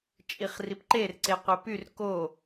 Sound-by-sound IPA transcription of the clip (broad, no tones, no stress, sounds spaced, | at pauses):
t͡ʃʼ i χ r i p ǃ e r ǀ e qʷ e p y r k o